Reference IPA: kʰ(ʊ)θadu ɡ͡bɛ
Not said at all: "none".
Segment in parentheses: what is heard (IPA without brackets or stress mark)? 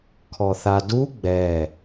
ɔ